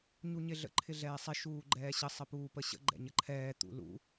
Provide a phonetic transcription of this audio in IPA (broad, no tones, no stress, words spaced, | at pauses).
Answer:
ɲuɲɪɮə̰ ǃʰɪɮɛːsˤɪ ʃuːɡ͡ǃɛːɕə sˤəpuːpəɕə̰ ɡ͡ǃɛ̰ɲəǃʰɛː t̪ṵlṵ